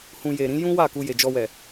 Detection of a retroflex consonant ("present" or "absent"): absent